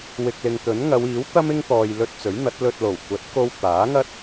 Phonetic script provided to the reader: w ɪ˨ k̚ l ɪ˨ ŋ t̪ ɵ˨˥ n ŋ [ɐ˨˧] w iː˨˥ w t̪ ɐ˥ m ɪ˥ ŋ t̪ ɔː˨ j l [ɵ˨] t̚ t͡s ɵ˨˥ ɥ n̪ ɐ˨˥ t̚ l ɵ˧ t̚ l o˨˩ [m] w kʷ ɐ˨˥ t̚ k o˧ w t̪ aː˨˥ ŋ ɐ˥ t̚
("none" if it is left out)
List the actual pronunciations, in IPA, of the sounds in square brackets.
ɐ˨˧, ɵ˧, none

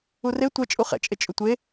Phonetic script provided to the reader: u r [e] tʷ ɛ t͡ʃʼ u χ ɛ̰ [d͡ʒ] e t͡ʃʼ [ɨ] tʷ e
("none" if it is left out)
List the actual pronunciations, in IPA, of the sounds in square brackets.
e, t͡ʃʼ, ʏ

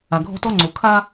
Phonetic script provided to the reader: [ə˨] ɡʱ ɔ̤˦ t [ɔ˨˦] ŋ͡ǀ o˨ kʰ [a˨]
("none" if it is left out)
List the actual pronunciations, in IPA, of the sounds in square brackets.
a˨, ɔ˦, a˦

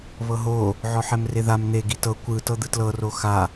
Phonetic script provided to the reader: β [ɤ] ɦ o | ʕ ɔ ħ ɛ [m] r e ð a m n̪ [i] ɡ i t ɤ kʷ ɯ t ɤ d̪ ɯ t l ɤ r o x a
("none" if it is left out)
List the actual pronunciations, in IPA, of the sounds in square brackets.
ɤ, m, e

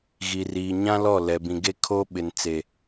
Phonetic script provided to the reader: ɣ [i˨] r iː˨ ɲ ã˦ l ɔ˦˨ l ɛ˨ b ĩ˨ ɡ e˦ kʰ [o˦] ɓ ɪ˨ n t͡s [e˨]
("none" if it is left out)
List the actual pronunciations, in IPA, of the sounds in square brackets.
i˨, o˦, e˨

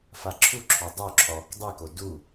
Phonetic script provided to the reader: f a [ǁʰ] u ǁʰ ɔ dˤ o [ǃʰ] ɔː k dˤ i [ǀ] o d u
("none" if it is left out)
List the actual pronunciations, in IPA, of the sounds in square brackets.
ǁʰ, ǁʰ, k

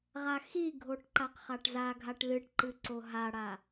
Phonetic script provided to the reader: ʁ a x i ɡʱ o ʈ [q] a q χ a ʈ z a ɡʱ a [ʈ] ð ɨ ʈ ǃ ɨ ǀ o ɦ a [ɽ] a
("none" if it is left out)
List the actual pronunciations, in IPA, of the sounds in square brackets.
ǃ, ʈ, ɽ

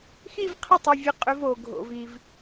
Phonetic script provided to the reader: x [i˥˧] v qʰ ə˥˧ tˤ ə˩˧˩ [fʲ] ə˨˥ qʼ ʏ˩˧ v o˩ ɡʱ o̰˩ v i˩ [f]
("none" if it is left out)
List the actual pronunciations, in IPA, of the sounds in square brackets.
i˥˧, vʲ, v

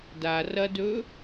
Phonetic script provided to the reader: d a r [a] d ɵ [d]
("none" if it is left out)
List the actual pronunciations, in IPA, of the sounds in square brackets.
ɐ, none

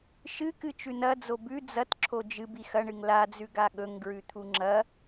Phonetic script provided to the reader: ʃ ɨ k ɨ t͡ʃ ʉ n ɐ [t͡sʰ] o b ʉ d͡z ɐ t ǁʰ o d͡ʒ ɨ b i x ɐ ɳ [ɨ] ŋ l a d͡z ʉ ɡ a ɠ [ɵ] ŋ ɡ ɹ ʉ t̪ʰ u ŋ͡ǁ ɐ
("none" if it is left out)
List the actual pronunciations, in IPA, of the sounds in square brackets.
d͡z, ɨ, ɵ

